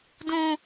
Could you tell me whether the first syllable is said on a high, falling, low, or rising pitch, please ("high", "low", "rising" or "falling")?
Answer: high